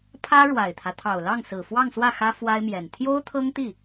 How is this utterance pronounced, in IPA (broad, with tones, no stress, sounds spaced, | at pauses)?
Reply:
pʰ ä˥ ɻ w a˨˩ ɪ̯ t̪ʰ ä˦ t̪ʰ ɑ˨˩ ʊ̯ l ɑ˥˩ ŋ s ɹ̩˨˩ f w ɑ˥˧ ŋ s w ä˥˩ x ä˥ f w a˥ ɪ̯ m j ɛ˨˩ n t̪ʰ j o˥ ʊ̯ t̪ʰ ɤ˥ ŋ t̪ i˥˩